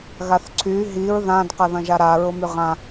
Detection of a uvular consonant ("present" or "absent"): present